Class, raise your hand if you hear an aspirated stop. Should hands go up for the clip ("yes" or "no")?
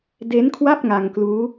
yes